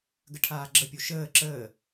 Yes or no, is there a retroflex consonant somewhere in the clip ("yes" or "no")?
yes